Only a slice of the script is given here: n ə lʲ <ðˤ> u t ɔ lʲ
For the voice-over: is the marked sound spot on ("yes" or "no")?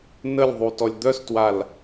yes